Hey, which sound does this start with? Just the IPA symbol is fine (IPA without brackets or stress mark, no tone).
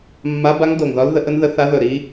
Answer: mː